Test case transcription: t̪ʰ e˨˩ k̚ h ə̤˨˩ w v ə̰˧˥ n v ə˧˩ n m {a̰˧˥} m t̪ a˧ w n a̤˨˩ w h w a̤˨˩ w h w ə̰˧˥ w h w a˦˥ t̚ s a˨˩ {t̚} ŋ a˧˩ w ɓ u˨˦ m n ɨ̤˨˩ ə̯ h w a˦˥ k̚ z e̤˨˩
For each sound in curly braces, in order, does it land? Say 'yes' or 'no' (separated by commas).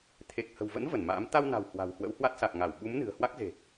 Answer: no, no